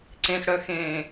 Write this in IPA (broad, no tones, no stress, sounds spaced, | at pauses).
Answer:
ǀ ẽ x ɽ œ x ẽː